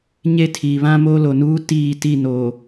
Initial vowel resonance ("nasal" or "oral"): oral